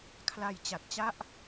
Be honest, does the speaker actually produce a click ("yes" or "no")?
no